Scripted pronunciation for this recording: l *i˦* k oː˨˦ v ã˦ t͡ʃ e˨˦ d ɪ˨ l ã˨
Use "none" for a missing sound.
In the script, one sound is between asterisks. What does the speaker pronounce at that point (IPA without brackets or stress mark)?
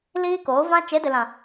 iː˦